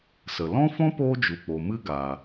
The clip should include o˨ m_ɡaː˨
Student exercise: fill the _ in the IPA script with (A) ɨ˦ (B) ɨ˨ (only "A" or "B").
A